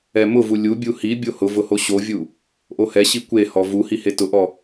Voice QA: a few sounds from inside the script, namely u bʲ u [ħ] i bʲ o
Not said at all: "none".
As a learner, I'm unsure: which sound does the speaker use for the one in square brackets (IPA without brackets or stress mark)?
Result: h